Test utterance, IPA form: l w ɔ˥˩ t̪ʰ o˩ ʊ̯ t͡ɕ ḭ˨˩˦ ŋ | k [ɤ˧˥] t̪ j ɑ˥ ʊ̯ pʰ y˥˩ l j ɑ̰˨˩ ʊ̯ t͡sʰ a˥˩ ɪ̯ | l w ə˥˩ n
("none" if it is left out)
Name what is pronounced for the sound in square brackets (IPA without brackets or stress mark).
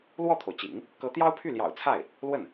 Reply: ɤ˧˥